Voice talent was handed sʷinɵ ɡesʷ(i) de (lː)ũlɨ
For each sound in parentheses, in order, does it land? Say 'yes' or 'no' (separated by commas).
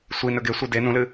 no, no